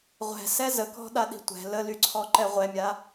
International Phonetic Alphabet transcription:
ʁʷ ɛ̤ s ɛ z ə k ɔ̤ ɗ a ɗ i̤ tʷ ɛ̤ l ə l y ǀʰ ɔ ǃ ɛ ʁʷ ɛ mʲ a

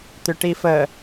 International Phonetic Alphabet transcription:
t̪ ʏ ʈ i f ə

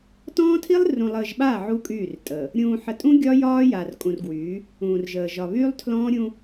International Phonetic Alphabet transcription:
t ɔ̃ː˦ tʰ i˦ lˠ r ũ˨ lˠ əː˨ ʒ ɓ a˦˨ ʕ u˦ kʼ yː˦˨ r tʼ əː˨ | ɾʲ ũː˨ ħ ə˨ tʼ ũ˦ ɡʲ ɒ˦ j ɒː˦ j a˨ r kʼ ũ˨ r ɡ w yː˨˦ | ũː˨ r ʒ əː˨ ʒ ɒ˨ β yː˦ lˠ tʰ l ɔ̃ː˦ ɾʲ ũ˦

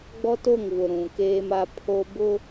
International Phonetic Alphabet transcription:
ɡ͡b ɔ˦ t o˦˨ ŋ v ʊ˨ ɾ ũ˨ k eː˦ m a˦ pʰ o˦ b ʊ˦

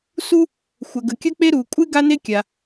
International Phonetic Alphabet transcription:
s u˥ | xʷ ə˩ ɡ ə˩ kʲ ə˥ k͡p e˥ ɾ u˩ kʷʼ ɨ˥ ɡ a˥ n e˥ kʲ a˩

